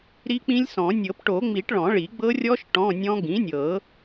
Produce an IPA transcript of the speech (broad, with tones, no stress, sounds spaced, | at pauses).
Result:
ɾ i˦˥ k͡p ĩ˦˥ lʲ s ɔ̃˨˩˦ nʲ ɤ˨˩˦ p ʈ o˨˩˦ ŋ͡m i˨˩˦ ʈ ɭ ɔ̃˨˩˦ ɭ i˨˩˦ ɡ͡b ɤ˦˥ rʲ ɔ˦˥ ʃ ʈ ɔ̃˧˥˧ nʲ ɔ̃˦˥ ɡ ĩ˩˥ nʲ ɤ˨˩˦